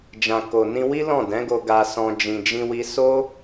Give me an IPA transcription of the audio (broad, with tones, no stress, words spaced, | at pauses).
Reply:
d͡ʒã˨ko˨nĩ˧wi˦ lɔ̃˦˨dɛ̃˨˦ɡo˧ ɡa˧sɔ̃˧ d͡ʒĩ˨d͡ʒĩ˧wi˧ so˦